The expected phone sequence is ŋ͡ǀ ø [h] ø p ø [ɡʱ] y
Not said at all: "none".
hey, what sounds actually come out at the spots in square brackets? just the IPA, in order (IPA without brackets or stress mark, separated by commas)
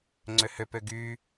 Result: h, ɡ